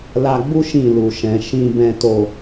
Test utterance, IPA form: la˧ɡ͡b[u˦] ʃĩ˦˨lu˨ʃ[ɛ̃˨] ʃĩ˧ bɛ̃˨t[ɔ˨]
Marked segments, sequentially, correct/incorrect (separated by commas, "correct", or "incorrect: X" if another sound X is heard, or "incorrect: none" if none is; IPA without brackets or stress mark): correct, correct, incorrect: o˨